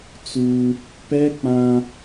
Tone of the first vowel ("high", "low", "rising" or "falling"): high